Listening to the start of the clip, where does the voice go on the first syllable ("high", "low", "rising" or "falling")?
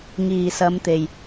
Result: low